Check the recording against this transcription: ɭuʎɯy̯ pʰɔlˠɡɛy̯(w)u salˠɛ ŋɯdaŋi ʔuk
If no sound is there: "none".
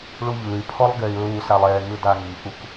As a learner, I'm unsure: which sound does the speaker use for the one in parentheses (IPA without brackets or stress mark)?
ɹ